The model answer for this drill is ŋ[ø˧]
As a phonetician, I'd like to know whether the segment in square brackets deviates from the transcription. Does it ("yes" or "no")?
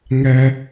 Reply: yes